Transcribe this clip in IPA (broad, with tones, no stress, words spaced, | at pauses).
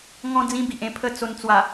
ŋɔ̃˧d͡zĩ˧ bi˨ʔẽ˧pʰə˥˧ t͡so˧nt͡swa˨˩